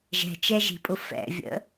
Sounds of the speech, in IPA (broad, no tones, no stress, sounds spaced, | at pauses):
ʒ ɛ̤ t͡ʃ ɛ ʒ i̤ pʼ ʊ f ɛ̰ vʲ ə̰